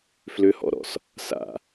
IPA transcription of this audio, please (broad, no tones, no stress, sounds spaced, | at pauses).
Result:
f l ʏ h ɔ̰ ɾ ɔ̰ s | s a̰